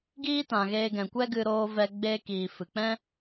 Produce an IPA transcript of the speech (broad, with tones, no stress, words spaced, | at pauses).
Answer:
ɡiː˦tã˨ɣeː˧ɡɛ̃˨ kʷɛ˦ ɡɨ˧ɾoː˧vɛ˧ ɡ͡beː˧kiː˨fɨ˨k͡pɛ̃˦